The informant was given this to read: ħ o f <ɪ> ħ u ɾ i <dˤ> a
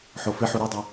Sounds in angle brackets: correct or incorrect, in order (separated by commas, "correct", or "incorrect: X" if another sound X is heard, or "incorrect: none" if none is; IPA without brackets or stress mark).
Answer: correct, correct